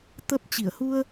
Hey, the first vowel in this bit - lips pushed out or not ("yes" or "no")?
no